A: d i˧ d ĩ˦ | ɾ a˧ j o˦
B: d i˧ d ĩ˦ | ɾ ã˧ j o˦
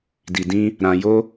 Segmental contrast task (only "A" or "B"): B